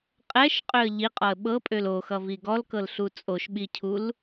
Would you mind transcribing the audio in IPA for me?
qʼ ɛ ʃ qʼ ø ə̯ ʎ i qʼ ɔ ə̯ ɓ ɤ pʼ ø l o x ʌ v i ɡ ɔ l k ɤ l ɬ u t͡sʼ o ʃ ɓ i cʰ u l

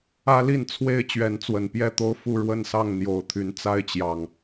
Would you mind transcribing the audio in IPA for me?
ä˦ l i˥˨ n t͡sʰ w e˥˨ ɪ̯ t͡ɕ ɥ ɛ˨˦ n t͡s w ə˨˩ n p j ɛ˥˨ t̪ o˦ ʊ̯ f u˥˨ ɻ w ə˥˨ n s ɑ˥˨ ŋ n̪ j o˨˩ ʊ̯ t̪ʰ y˨˦ n t͡s a˦ ɪ̯ t͡ɕ j ɑ˨˩ ŋ

